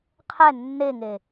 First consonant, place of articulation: uvular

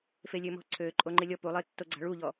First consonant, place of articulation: labial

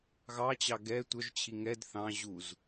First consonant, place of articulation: velar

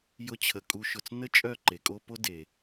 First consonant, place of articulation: palatal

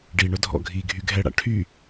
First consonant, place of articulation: retroflex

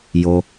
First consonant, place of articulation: palatal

